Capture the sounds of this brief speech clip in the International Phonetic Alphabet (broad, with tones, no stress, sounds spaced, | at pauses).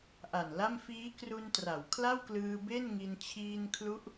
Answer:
ʔ a˨˩ n l a˥˩ m f iː˦˥ k r u˧ n t r a˩˦ w kʰ l a˥˩ w k l ɯː˧ b e˥˩ n ŋ i˧ n t͡ɕʰ iː˧ n kʰ l u˦˥ ʔ